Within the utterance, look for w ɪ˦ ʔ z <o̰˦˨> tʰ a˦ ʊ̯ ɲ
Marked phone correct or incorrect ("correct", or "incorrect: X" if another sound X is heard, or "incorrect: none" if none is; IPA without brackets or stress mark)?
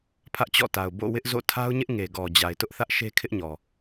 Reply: correct